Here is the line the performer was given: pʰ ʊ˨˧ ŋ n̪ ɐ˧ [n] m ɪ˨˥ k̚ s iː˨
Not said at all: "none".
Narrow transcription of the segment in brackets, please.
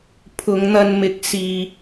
n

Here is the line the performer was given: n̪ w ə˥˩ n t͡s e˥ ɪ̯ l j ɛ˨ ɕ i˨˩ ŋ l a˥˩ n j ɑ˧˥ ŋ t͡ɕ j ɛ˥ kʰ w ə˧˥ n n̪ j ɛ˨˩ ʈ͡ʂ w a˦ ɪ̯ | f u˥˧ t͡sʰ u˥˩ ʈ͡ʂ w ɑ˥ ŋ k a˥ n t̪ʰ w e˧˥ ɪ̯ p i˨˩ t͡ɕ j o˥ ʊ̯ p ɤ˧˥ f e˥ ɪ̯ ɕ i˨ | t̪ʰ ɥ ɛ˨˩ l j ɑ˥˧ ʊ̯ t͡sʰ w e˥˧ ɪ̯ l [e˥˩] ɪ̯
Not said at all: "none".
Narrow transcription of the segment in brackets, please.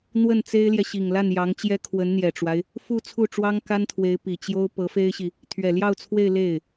e˥˩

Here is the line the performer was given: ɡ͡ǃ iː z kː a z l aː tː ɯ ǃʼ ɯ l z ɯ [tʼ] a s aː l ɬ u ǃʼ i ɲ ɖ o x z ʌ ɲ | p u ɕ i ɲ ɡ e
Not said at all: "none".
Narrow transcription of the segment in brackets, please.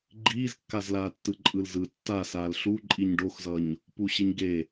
tː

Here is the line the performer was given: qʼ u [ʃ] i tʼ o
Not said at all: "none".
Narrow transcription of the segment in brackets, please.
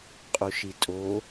ʃ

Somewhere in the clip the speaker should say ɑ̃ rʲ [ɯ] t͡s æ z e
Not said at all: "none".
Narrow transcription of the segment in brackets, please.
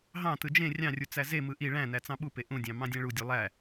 u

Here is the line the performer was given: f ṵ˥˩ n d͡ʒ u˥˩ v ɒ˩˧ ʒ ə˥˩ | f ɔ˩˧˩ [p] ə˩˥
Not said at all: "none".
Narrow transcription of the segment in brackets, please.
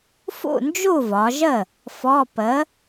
p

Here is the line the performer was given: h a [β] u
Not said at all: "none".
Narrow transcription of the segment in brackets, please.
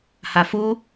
f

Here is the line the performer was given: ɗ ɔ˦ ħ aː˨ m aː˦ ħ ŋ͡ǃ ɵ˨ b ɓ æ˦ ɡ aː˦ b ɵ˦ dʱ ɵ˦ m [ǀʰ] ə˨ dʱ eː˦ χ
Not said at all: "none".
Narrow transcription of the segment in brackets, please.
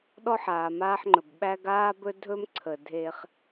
ǀʰ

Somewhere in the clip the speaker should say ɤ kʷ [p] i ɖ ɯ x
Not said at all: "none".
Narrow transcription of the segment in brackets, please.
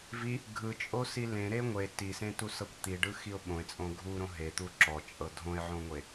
t̪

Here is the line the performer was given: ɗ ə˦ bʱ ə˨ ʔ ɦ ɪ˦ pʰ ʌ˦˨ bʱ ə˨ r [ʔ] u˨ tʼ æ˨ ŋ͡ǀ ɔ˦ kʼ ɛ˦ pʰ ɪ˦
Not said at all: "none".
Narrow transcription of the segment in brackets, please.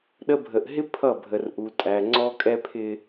ʔ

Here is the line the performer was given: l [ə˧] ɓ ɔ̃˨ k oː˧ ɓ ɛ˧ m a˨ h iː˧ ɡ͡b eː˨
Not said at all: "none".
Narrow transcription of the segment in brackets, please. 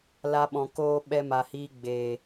a˧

